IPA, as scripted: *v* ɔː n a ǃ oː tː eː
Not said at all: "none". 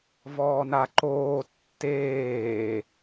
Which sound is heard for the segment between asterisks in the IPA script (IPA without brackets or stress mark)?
v